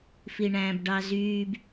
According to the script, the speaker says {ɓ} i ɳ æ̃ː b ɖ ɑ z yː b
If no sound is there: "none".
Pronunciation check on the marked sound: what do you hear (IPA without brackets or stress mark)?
f